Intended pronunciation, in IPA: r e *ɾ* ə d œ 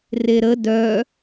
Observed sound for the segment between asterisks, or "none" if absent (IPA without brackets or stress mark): ɾ